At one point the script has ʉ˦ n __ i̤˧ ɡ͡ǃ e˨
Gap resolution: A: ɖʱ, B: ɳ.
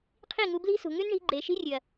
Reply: B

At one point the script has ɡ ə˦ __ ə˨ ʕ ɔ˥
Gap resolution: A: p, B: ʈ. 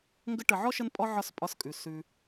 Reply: B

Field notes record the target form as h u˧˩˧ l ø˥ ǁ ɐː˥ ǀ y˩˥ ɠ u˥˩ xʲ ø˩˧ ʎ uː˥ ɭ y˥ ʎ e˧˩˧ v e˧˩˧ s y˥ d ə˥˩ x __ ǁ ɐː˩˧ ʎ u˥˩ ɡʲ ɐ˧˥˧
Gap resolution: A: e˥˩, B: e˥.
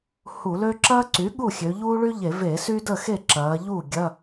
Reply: A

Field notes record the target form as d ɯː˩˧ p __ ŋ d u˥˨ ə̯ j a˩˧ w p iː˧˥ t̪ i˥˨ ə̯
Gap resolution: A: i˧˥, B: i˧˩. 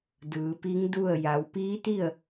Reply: A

